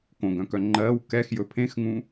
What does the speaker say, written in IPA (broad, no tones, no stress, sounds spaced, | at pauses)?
k õ ɡ œ̃ k œ ŋ͡ǃ ɜ w k ɛ x j ɵ pʰ ẽ x ŋ ũ